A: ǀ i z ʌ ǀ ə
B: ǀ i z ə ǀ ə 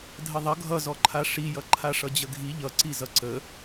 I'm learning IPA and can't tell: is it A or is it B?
A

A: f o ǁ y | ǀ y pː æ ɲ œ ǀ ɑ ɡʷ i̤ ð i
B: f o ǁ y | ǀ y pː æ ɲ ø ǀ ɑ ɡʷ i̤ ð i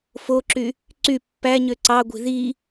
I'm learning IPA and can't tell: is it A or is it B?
B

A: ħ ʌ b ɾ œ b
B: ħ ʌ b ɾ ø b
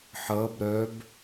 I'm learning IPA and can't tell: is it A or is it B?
A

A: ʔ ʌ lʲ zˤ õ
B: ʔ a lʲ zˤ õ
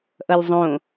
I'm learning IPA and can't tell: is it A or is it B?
A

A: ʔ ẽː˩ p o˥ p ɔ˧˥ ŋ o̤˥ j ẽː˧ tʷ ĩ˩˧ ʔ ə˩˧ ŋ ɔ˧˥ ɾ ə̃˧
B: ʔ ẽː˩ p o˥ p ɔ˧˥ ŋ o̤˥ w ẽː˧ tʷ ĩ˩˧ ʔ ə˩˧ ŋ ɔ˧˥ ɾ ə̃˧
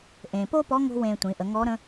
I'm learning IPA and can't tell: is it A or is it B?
B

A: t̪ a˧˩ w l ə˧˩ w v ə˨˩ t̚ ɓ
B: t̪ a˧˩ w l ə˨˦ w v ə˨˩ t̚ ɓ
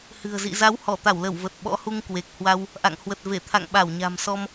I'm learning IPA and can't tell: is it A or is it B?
A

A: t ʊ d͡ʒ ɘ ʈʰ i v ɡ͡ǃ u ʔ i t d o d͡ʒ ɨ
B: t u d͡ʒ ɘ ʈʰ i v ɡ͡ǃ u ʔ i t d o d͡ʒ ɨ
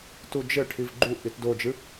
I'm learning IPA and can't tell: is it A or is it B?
B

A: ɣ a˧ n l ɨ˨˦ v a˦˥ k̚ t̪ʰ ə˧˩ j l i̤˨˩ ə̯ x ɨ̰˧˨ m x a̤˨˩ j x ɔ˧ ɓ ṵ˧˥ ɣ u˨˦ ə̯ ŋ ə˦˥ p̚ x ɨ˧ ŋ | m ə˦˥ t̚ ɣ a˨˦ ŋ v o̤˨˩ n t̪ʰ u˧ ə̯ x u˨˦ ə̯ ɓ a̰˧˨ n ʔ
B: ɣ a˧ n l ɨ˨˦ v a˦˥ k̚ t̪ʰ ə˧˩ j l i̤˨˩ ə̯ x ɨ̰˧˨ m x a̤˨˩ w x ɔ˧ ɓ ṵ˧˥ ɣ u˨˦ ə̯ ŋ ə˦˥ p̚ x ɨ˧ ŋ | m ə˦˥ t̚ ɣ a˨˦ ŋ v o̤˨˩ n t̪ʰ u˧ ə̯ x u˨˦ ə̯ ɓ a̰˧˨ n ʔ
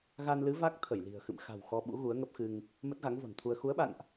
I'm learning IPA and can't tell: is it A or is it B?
B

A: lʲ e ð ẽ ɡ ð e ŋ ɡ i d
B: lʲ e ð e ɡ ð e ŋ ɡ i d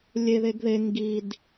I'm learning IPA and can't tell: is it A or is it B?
B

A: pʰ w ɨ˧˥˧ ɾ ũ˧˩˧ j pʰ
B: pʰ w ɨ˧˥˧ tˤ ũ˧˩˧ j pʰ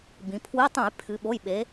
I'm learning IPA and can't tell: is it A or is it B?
B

